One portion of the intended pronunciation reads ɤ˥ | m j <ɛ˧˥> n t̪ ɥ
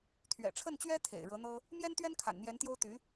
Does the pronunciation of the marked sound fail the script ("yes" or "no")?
yes